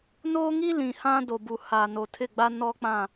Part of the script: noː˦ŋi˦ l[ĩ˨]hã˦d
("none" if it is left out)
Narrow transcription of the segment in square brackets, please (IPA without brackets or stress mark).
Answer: ĩ˨